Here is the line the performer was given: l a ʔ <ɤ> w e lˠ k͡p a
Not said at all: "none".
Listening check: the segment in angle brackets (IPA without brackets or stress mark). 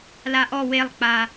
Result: ɔ